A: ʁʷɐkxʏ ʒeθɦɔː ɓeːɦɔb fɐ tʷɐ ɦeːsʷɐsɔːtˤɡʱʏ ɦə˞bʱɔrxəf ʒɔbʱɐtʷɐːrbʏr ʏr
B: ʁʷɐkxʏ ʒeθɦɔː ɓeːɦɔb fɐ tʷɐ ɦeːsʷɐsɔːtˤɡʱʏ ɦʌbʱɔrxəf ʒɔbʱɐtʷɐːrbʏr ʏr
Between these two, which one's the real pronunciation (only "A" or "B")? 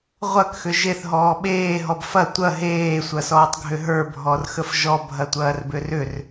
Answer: A